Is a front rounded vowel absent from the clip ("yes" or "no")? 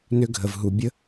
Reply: no